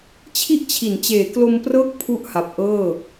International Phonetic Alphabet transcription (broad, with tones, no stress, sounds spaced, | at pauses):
t͡ɕʰ i˥˩ ʔ t͡ɕʰ i˩˦ n t͡ɕ eː˩˦ k l o˧ m p r ɤː˦˥ k̚ pʰ u˥˩ ʔ h a˨˩ p̚ ʔ ɤː˥˩